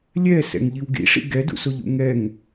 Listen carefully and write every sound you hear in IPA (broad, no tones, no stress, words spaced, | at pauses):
lʲɛ sɛ̰ŋʎiwɡḭ ʂḭɡɛdṵsoʎ ṵŋɛŋ